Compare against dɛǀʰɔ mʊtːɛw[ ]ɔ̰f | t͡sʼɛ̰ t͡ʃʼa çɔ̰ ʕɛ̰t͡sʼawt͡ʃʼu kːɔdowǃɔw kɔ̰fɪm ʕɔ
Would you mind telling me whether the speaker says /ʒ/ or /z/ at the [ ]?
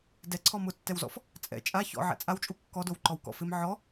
z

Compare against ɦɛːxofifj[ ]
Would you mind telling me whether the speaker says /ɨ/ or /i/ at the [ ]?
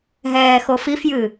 ɨ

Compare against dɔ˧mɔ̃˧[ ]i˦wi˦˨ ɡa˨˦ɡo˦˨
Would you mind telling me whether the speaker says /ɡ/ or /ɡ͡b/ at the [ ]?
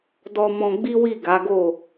ɡ͡b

